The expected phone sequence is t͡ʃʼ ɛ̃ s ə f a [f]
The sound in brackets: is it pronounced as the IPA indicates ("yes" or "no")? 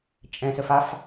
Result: yes